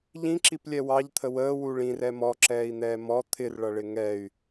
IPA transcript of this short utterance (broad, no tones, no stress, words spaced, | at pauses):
ʎĩǁiplʲɛ wɑʎt̪ʰə wəːwu ɭĩrɛ mɔǁɛːi̯n̪ɛː mɔ t̪ʰɪrɭʌɭɪ ŋɛy̯